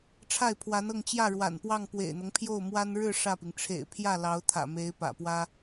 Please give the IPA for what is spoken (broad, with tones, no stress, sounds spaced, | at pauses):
ʈ͡ʂʰ a˥˩ ɪ̯ pʰ w a˧˥ n ɤ˥˧ ŋ t͡ɕ j ä˥˩ ɻ w a̰˨˩ n p w ɑ˥˩ ŋ p w ḛ˨˩ ɪ̯ n̪ ɤ˦ ŋ pʰ j o˥˩ ʊ̯ m w a˥ n ɻ ɻ̩˥˧ ʂ ä˥˩ p i˩ ŋ ʈ͡ʂʰ ḛ˨˩ ɪ̯ pʰ j ä˥˩ l ɑ˧˥ ʊ̯ t̪ʰ ä̰˨˩ m e˧˥ ɪ̯ p ä̰˨˩ p w ä˥